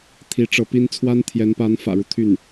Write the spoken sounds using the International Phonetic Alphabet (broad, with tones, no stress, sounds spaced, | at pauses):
t̪ʰ i˧˥ ʈ͡ʂ ɤ˧˥ p i˥ n t͡sʰ w a˥ n t̪ʰ j ɛ˧˥ n p a˧˥ n f ä̰˨˩ ɻ u˦ t̪ʰ y˥˩ n